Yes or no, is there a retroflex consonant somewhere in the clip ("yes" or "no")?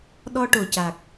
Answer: yes